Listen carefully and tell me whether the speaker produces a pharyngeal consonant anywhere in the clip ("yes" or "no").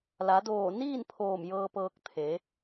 no